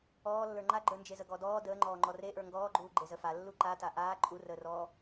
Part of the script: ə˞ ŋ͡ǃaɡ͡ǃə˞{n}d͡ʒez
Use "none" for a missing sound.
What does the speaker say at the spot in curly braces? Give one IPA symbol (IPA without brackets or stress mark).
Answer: n